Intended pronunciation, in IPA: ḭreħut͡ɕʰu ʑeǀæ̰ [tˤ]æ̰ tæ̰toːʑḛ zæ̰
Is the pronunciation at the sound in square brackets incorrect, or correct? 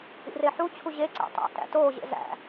correct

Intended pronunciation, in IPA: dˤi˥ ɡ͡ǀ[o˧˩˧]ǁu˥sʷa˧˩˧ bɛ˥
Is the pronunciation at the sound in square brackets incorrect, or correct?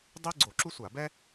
correct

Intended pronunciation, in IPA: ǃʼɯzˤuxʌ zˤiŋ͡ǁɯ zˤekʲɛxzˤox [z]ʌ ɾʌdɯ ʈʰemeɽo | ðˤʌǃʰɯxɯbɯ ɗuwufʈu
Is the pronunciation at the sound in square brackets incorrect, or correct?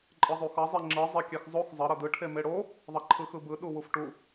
incorrect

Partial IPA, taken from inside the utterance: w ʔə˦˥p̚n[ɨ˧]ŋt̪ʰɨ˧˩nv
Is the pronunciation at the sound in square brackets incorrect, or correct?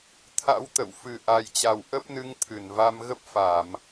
correct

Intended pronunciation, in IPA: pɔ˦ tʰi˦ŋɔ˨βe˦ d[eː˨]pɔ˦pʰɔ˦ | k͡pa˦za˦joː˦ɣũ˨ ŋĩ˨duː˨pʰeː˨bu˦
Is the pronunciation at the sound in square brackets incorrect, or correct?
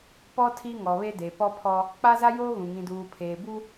incorrect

